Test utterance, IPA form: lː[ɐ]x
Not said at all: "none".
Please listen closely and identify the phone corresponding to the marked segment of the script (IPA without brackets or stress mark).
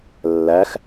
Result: æ